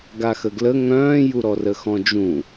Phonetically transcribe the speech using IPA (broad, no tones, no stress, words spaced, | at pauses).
ɡaxəɡlə ŋœ̃ːjuɾɔ rəxɔ̃d͡ʒũ